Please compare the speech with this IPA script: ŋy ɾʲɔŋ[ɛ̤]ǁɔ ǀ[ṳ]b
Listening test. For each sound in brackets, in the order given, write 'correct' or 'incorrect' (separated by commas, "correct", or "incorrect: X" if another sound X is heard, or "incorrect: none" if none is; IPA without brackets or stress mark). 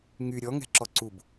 correct, incorrect: u